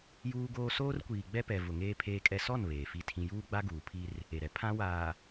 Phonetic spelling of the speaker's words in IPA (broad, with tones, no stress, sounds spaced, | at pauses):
j uː˦ ɡ oː˦ s oː˦ r kʷ iː˨ ɡ͡b ɛ˦ p ɛ˨ v ʊ˨ ŋ eː˦ pʰ eː˦ kʼ ɛ˦ s ɔ˦˨ n β eː˨ f i˦˨ tʰ ĩ˦ j uː˦ ɡ͡b a˦ ɡ uː˨ pʰ i˦ r | e˨ ɾ ɛ˨ pʰ ã˦ w aː˨